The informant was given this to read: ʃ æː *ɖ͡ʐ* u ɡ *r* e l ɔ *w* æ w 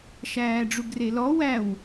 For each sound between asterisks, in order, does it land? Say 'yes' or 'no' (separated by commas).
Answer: yes, yes, yes